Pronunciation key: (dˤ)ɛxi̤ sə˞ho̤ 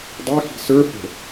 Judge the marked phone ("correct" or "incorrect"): correct